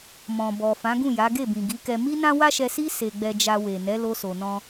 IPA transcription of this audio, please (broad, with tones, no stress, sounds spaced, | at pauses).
m ɔ̃˨ b ɔ˨ f ã˨˦ ɡ ũ˦˨ j a˨˦ ɡ e˦˨ b ĩ˨ ɡ i˨˦ k ɛ˧ m i˦ n ã˦ w a˦ ʃ ɛ˧ s i˦ s e˧ ɡ͡b ɛ˧ d͡ʒ a˧ w e˨ n ɛ˨˦ l o˧ s o˨ n ɔ̃˧